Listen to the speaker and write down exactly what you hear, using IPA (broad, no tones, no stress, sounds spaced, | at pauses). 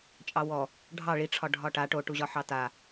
t͡ʃʼ ɑ w ɔ | ɖʱ ɑ ɭ i ʈ͡ʂʰ ɒ ɖʱ ɒ ʈ a ʈ o ʈ u ʑ ɒ ħ ɑ t a